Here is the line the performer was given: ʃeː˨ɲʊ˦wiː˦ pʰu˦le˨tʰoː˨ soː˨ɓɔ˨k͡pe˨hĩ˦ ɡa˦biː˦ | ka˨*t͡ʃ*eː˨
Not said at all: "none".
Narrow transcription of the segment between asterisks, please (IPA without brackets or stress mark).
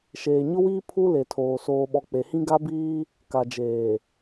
d͡ʒ